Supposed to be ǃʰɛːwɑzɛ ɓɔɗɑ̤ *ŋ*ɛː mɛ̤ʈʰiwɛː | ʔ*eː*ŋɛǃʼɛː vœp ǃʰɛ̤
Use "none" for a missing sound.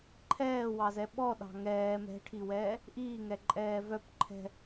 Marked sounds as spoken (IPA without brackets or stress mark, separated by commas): ŋ, iː